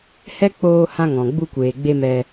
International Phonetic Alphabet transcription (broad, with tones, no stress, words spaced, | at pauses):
hɛ˦k͡poː˧ hã˧ŋɔ̃˨ ɡ͡bu˧kʷeː˨ɡ͡be˧ mɛ˧